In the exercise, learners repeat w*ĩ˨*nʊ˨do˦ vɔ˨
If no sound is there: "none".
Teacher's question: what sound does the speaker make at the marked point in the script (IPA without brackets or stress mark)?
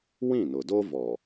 ĩ˦˨